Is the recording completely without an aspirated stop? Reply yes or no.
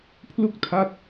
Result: no